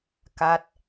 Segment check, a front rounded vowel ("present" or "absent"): absent